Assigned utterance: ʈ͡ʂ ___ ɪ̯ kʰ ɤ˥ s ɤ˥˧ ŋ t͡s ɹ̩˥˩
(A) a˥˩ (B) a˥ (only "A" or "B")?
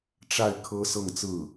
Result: A